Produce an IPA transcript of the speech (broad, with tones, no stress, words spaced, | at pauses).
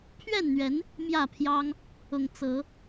pʰɥɛ˥˨nn̪ɥɛ˨˦n | mjä˥˨pʰjɑ˦ŋ | ʊ˨˩ŋt͡sɤ˨˦